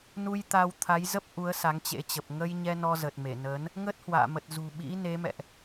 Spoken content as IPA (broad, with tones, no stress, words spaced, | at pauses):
nu˧jt̪a˧w t̪ʰa˨˦jzə˦˥p̚ ʔu˨˦ə̯ sa˨˦ŋt͡ɕḛ˧˥t͡ɕə˨˩p̚ ŋə˧jɲɛ˧ nɔ˧zə˨˩t̚me˧˩nəː˨˦n | ŋə˦˥t̚hwa̰ː˧˨mə˨˩t̚ zṳ˨˩ɓḭ˧˥ ne˨˦mɛ̰˧˨ʔ